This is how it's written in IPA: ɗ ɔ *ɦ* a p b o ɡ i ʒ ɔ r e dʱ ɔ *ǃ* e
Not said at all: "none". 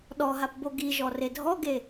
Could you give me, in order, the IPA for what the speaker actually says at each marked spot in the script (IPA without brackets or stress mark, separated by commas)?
ɦ, ɡ